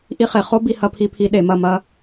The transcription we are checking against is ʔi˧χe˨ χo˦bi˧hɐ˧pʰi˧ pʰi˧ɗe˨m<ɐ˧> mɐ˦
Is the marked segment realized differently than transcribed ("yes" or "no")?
yes